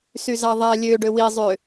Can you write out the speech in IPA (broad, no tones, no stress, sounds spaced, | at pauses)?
s y z ɑ ðˤ æ lʲ ø ɖ ø w i zˤ ø